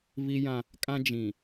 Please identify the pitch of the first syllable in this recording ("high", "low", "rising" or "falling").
high